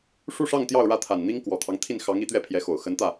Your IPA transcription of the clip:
ʂ u˥˧ ʂ ɑ˥˧ ŋ t̪ j ɑ˥˧ ʊ̯ ɻ ä˥˩ t̪ʰ a˨˩ n n̪ i˥ ŋ k w ɔ˨˩ t̪ʰ ɑ˦ ŋ t̪ʰ i˥˩ n x ɑ˧˥ ŋ i˧˥ t̪ ɥ ɛ˥˩ pʰ j ɛ˧˥ x o˨˩ ʊ̯ x ə˧˥ n t̪ ä˥˩

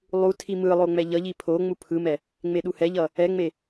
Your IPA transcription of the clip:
lˠ u tʰ i m ɯ lˠ o ŋ͡m ɛ ʎ ʌ ʎ i pʰ o ŋ͡m u pʰ ɯ m ɛ | ŋ͡m e ɗ u h ɛ ʎ ʌ | ɛ ŋ͡m e

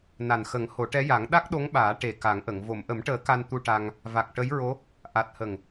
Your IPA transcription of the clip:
n a˨˩ n x ə˨˩˦ ŋ h o˨˩˦ ʈ ɛ˧˥ j a˨˩˦ ŋ ɗ a˦˥ k̚ ɗ o˧˥ ŋ ɓ aː˨˩˦ ʈ e˨˩ k a˨˩˦ ŋ ʔ ə˨˩˨ ŋ v o˨˩˨ m ʔ ə˨˩˦ m ʈ əː˨˩˦ k a˧ n t̪ u˧ ʈ a˧ ŋ | v a˨˩ k̚ ʈ ə˧˥ j ɹ o˧˥ | ʔ a˨˩ t̚ h ə˨˩ ŋ

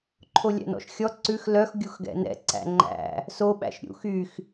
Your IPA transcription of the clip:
ǃʰ o lʲ æ̰ n ɔ̰ ʃ xʲ ɔ ǀ ʉ x l œ x ɡʲ u x ɡ ɛ̰ n ɛ̰ ǀ æ̰ ŋ͡ǃ æ̰ | s o ɓ æ̰ ʃ ɾʲ ṵ x y x

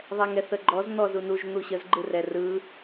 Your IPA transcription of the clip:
ðˤ ɛ ŋ ɛ θ ə ɡ͡ǃ ɔ z n̪ ɔ z u n u ʒ n̪ u ɕ ə z ɡ͡ǃ ɯ r ɛ r ɯ

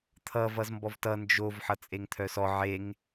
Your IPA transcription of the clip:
t̪ʰ ʌ v ʌ z m b ɔ v t ʌ n d͡ʒ o v ħ ʌ t͡sʼ e ŋ t̪ʰ œ s ɔ ʕ e ŋ

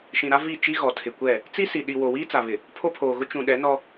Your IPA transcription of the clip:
ʃ ĩ˨ ɾ a˦ v i˦˨ t͡ʃ i˦ ɣ ɔ˨ tʰ ɪ˨ kʷ ɛ˦˨ | t͡s i˦ s i˨ ɗ i˨ w o˨ w iː˦ t͡s a˨ β ɪ˨ | pʰ o˦ pʰ oː˨ ɣ ʊ˦ t͡ʃ ũ˨ ɗ ɛ˨˦ n ɔ˦

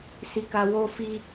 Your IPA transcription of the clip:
s i˧ k a˧ w o˦ f i˦

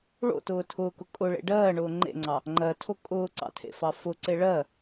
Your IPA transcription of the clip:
ɭ o̰ t ʊː tʰ ʊː k ʊ kʼ ʊ ɭ ḛ ɖ ɜː ɳ ʊː ŋ͡ǃ ḛ ŋ͡ǀ ɑ | ŋ͡ǃ ɜ tʰ o kʼ ʊː ǀ ɑ̰ tʰ ḛ f ɑ f ʊ ǀ e ɭ ɜ

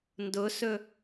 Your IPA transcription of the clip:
n d ʊ s ɵ

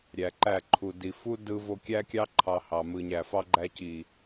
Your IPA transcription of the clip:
ɾʲ æ˨ ǃ æ˦˨ ǃʰ u˨ d i˨ f u˦ d ɯ˧ v o˧ kʲ æ˦ kʲ ɑ˦ ǃʰ ɑ˧ h ɑ˨ m ɯ˨ ɲ æ˨ f ɑ˦ ɡ͡ǃ æ˧ c i˨

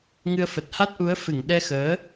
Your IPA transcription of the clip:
ŋ ɨ˧ ə̯ f ə˨˩ t̚ h a˦˥ t̚ ʔ u˨˦ ə̯ f ɨ˧˩ ŋ ɗ ɛ˧ x əː˨˦

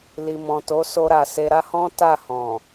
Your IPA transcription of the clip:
l i˨ m ɔ̃˨ t o˨˦ s o˧ ɾ a˨ s e˧ ɾ a˦ h ɔ̃˦ t a˦˨ h ɔ̃˨

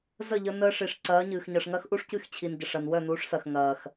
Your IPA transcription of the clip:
z ə˦˨ ʎ ə˧ n əː˧ ʂ i˨ ʂ ǀ ɐː˨˦ ɲ ɨː˨ x ɲ ɐ˨ ʂ ŋ ɐ˧ x ʔ u˧ ʂ c ɨ˦˨ x t͡ɕʰ i˨ n ɟ ɐ˨ ʂ ɐ˨ n w œ˦˨ n uː˨˦ ʂ s ɐ˨ x ŋ ɐː˨ x

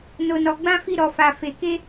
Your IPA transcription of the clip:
n o˧ n ɔ˧ ɡ͡b ã˦ f i˦ ɾ ɔ˧ f a˧ f e˧ k e˦

